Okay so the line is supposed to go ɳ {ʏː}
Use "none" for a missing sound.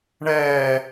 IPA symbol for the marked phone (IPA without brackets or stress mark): ɛː